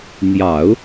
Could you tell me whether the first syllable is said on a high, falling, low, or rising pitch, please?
low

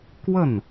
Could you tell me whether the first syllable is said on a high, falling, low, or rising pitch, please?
falling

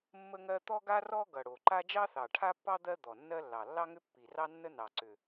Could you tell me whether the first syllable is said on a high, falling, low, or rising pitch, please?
high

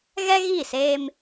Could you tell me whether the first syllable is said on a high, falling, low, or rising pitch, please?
high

